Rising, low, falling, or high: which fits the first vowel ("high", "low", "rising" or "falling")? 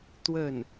falling